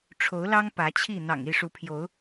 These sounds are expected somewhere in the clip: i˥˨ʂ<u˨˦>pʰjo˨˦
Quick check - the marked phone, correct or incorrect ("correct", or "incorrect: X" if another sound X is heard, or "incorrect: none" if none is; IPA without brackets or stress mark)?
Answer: correct